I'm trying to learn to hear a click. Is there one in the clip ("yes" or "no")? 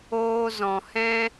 no